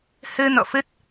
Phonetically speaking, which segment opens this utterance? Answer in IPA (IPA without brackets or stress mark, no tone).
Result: h